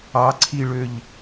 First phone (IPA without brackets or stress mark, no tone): ɑ